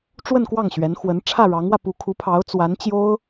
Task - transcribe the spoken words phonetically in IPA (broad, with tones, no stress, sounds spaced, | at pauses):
ʈ͡ʂ w ə˥˧ n k w ɑ˥˩ ŋ ɕ ɥ ɛ˧˥ n x w ə˧˥ n ʈ͡ʂʰ ä˥˩ ɻ ɑ˧˥ ŋ w ä˧ p u˧˥ kʰ u˧˥ pʰ ɑ˧˥ ʊ̯ t͡s w a˧˥ n t͡ɕ j o˥ ʊ̯